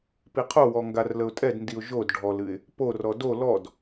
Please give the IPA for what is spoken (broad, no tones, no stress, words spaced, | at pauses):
piqʰowɔ ŋɡarləʊ̯tʼɛdndiʊ̯ ʒod ɖʱɔlɨɪ̯ | porɔ do lɔd